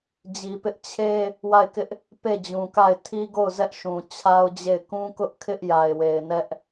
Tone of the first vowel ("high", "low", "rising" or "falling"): low